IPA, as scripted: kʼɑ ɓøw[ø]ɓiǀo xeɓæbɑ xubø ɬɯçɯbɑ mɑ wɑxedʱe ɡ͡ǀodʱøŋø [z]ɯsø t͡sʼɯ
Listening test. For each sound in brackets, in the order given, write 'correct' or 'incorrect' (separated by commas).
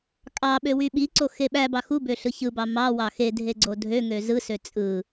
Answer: incorrect, correct